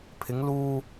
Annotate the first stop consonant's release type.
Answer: aspirated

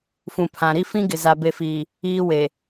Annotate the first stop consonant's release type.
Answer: aspirated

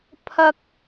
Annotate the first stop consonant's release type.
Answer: aspirated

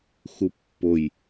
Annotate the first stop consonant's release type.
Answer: plain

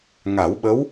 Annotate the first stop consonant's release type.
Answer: implosive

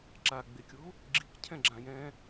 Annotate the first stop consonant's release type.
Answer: click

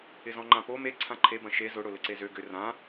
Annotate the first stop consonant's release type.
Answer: click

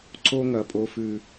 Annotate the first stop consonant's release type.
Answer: click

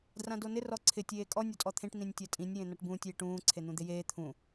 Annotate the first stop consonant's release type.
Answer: plain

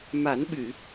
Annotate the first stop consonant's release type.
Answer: implosive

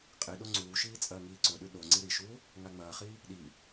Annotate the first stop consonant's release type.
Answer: ejective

